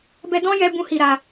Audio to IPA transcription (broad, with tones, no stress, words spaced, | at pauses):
bɛ˧dɔ̃˦ jɛ˦bũ˦hi˧ɾa˧